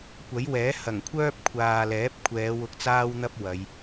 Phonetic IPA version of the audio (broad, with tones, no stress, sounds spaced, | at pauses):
kʷ ɐ˨˥ j w ɛː˨˥ h ɐ˨˩ ŋ kʷʰ œː˥ p̚ kʷʰ aː˨ l ɛː˨˥ p̚ kʷʰ ɛː˨˧ w ʊ˧ k̚ t͡s aː˥ w n̪ ɐ˥ p̚ w ɐ˨˧ j